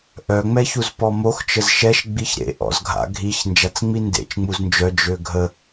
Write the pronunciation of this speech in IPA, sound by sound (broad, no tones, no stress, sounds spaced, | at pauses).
ʔ œ ŋ͡m ɛ ç u z p ɔ m o x t͡ʃ ə z ʃ ɛ ʃ ɡ͡b i ç ɾ ḛ ʔ ɔ̰ z ɡʱ a̰ ɡʱ i ç n d͡ʒ a t͡s ŋ͡m i n d ḛ t͡ʃ ŋ͡m u z n d͡ʒ œ d͡ʒ ø ɡʱ ə